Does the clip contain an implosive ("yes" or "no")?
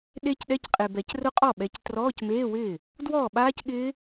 yes